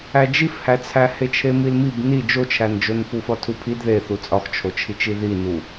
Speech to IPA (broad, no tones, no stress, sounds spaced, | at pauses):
æ d͡ʒ i f h æ t͡sʰ æ h e t͡ʃʰ e m i l m i b n i d͡ʒ o t͡ʃʰ æ n d͡ʒ o n f u f ɒ tʰ u pʰ i d ð e θ u t͡sʼ ɒ x t͡ʃʰ o t͡ʃʰ i t͡ʃ i ð i n u